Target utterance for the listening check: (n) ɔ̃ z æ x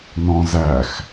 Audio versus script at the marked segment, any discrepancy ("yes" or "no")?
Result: no